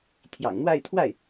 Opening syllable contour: low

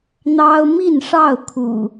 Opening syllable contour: high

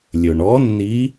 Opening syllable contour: low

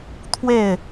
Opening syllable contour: falling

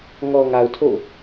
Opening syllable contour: low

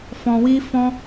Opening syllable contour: low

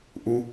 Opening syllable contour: low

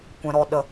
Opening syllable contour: low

